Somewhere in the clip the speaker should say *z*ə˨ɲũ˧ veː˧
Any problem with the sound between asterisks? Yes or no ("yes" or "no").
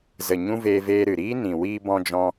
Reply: no